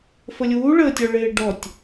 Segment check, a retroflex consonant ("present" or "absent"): present